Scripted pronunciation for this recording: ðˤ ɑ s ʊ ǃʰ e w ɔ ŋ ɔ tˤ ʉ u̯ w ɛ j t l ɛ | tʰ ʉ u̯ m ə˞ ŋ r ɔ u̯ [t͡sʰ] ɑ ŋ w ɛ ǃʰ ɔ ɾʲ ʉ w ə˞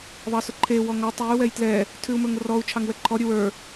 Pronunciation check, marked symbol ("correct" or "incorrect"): incorrect